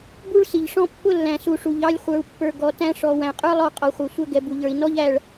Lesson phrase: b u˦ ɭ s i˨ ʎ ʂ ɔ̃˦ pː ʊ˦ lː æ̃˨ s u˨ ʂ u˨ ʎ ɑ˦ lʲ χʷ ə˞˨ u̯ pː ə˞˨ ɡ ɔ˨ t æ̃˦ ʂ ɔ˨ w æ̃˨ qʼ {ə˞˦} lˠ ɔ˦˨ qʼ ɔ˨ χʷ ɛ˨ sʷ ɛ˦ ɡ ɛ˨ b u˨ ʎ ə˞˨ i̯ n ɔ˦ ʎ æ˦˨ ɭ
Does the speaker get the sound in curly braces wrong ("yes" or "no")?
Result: no